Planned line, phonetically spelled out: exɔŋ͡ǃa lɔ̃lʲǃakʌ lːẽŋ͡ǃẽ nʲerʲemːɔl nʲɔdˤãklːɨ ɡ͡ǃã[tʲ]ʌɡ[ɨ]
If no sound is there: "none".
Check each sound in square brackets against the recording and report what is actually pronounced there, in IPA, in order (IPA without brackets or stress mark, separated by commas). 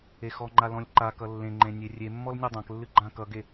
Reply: k, e